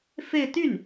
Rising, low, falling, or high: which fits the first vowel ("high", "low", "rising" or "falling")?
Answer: falling